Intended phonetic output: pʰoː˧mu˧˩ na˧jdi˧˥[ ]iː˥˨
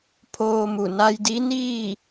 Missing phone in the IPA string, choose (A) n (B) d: A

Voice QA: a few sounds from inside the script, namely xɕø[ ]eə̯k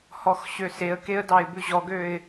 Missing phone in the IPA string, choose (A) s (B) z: A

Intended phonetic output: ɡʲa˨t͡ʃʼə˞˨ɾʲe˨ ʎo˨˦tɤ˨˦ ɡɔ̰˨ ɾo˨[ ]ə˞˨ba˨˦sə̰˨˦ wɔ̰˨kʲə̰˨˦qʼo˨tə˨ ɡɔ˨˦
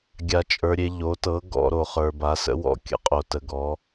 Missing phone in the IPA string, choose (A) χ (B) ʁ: A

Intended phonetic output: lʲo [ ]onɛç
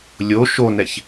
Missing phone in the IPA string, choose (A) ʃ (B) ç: A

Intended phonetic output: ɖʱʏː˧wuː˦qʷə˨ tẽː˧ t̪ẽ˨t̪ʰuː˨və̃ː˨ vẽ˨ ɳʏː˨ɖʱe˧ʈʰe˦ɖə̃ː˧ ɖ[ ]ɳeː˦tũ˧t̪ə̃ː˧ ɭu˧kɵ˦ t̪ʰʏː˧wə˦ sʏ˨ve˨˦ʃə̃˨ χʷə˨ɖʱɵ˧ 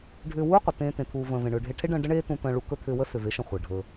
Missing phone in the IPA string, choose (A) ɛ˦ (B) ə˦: B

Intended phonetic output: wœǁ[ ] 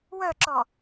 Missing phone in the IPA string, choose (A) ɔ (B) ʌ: A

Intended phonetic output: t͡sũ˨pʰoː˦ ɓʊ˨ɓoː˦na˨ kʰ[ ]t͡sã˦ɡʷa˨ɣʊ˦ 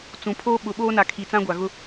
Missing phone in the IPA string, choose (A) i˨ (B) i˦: A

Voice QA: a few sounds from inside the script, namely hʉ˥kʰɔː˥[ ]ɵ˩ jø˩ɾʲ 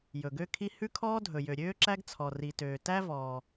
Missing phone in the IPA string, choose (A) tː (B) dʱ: B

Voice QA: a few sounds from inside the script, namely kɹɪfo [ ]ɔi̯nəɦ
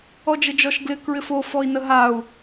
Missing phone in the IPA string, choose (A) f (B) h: A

